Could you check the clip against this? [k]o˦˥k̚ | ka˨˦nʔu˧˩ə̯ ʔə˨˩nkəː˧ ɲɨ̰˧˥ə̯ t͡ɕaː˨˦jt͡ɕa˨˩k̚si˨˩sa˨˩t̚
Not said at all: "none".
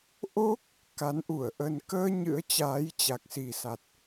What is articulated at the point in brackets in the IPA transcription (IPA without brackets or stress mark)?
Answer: ʔ